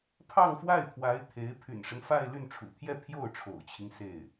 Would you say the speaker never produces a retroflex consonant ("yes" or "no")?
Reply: no